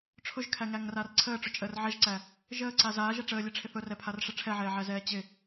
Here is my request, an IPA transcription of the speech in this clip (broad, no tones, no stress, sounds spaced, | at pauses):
ʈ͡ʂʰ ʊ ʒ kʰ æ ŋ æ ŋ r a r ǀʰ əː ʈ͡ʂ ʊ t͡ʃʼ əː r ʕ ɛ ʒ ǀ æ | ʒ əː ǀ a z aː ʒ ɛ ʈ͡ʂ əː lʲ ɛ ʈ͡ʂʰ ɪ θ ʊ r ɛ pʰ a r ʂ ɪ ʈ͡ʂʰ ɛ ʕ ɛː ʕ æ z ɛː t͡ɕ ɪ